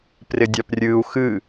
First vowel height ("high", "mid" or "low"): high